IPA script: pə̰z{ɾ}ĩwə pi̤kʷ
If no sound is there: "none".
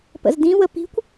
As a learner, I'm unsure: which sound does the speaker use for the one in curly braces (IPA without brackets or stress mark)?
d